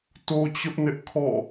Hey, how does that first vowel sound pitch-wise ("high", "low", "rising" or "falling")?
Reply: high